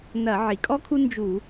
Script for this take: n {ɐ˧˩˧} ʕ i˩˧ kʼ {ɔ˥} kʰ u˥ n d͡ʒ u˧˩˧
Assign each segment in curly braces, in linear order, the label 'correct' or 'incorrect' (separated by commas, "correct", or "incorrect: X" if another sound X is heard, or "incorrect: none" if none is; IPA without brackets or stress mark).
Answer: correct, correct